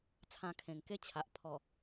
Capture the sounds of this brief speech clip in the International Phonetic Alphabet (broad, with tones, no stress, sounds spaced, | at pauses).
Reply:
t͡sʰ ã˧ kʰ ẽ˨˩ ŋ k e˦ t͡ɕʰ a˨ ʔ pʰ ɔ˨˩